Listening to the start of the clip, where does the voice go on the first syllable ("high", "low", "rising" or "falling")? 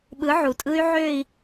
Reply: rising